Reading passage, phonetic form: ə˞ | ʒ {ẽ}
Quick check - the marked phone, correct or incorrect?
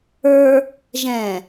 incorrect